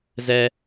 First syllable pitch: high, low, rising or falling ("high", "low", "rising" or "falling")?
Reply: low